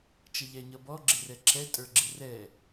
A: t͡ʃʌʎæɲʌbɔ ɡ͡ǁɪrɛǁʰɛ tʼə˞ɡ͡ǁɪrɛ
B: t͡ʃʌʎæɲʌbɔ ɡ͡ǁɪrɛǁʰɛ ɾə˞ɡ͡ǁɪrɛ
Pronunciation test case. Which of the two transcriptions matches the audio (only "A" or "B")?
A